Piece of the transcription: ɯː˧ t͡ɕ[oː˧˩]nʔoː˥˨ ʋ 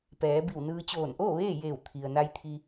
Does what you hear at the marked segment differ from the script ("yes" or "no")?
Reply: no